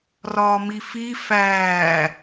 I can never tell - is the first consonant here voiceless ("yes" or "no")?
no